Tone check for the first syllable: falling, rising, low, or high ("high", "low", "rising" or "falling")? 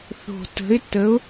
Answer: low